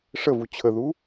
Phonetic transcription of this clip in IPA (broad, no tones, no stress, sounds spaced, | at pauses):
ʂ ə v u t͡ɕʰ ə ð u